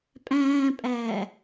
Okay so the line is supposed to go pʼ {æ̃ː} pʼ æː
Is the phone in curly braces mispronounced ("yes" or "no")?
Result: no